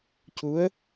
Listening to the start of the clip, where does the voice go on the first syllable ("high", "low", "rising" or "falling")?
rising